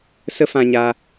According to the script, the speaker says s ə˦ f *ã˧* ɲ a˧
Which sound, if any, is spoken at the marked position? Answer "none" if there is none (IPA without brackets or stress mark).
ã˧